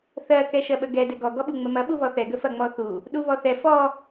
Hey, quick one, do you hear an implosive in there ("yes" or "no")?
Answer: yes